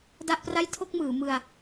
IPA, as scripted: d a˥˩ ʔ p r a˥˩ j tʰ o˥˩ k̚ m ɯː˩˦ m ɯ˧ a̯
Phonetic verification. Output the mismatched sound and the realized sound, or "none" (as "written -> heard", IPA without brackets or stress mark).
none